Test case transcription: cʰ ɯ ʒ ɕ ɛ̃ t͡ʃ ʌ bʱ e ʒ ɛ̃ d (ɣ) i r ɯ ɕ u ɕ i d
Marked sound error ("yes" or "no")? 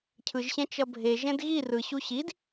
no